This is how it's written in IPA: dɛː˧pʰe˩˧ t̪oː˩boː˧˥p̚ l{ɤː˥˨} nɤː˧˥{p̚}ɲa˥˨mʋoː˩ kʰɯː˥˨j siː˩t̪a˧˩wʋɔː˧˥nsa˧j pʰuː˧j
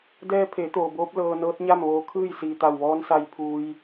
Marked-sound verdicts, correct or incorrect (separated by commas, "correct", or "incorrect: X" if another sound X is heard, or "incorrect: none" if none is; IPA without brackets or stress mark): incorrect: ɤː˧, incorrect: t̚